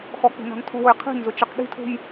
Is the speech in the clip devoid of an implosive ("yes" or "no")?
no